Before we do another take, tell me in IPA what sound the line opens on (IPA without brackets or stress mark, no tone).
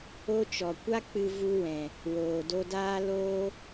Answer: o